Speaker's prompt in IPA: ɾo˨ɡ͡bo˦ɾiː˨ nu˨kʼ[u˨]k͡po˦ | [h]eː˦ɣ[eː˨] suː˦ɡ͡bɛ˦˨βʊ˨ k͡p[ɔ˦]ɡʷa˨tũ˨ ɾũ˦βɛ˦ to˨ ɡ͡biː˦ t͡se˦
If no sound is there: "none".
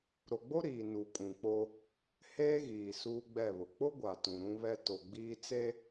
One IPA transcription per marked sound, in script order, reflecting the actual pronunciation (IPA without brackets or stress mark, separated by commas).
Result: ũ˨, h, iː˨, ʊ˦